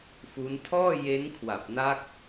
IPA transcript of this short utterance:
f u˦˥ n tʰ ɔː˥˩ j e˦˥ n kʰ w a˨˩ p̚ n a˦˥ k̚

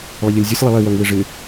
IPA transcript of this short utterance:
lˠ ʌ ʎ ʌ lʲ zʲ ə sʲ lˠ ɐ lˠ i w œ ŋ w ɪ ʐ ɪ

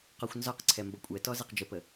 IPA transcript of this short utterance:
q ɒ xʷ n z ɒ q ǀʰ ɛ m b ʌ kʷʼ ɛ t ɔ z ɛ q d͡ʒ ə p ə

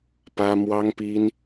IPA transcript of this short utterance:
p ä˥ m w ɑ˥ ŋ p i˥ n

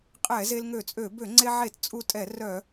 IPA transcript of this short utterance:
qʼ ɛ˧˩˧ z e˧ l ŋ ø˧˩˧ t͡sʼ ø˧˩˧ b ø˧˩˧ ŋ͡ǀ e˧ ʕ e˧˩˧ t t͡sʼ u˧ tʼ ɛ˧˩˧ r œ˧˩˧

